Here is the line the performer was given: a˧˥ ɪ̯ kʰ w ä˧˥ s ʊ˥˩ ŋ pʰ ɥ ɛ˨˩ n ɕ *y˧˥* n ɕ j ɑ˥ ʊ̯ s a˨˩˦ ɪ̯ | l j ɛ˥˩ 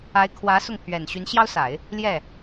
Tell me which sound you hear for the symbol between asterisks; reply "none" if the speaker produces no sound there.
y˧˥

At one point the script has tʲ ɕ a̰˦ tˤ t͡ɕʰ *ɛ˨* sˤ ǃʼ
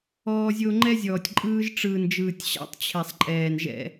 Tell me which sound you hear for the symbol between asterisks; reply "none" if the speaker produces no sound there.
ɛ˨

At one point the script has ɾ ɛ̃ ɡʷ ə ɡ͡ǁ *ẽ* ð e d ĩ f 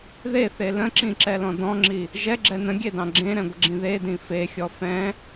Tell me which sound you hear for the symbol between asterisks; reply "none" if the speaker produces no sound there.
ĩ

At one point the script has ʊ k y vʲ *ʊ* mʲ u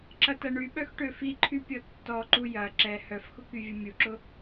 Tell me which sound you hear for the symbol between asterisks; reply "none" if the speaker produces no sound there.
ʊ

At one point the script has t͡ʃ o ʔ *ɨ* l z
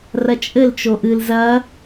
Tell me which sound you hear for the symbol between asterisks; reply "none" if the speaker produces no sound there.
ɨ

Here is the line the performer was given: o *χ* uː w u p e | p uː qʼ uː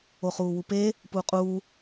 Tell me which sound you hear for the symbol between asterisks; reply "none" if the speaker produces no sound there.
χ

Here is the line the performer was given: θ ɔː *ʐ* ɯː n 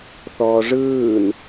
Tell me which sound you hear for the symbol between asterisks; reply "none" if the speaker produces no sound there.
ʐ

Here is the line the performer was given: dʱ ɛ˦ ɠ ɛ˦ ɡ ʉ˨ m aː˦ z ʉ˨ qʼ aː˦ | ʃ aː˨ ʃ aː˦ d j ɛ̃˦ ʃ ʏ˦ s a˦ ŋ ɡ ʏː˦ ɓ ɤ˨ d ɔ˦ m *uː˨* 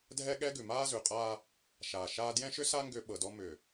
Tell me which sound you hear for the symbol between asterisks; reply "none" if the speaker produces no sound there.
ʏː˨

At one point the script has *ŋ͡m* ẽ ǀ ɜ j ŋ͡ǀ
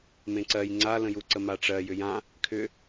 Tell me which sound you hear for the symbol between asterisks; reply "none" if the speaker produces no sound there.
m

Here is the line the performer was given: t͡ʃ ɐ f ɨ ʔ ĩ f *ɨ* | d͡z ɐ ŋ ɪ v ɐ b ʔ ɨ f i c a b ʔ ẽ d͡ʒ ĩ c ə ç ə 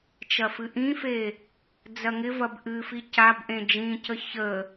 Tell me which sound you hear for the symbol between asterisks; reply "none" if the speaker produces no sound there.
e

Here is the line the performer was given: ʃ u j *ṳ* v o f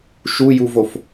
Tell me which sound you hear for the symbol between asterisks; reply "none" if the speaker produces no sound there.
u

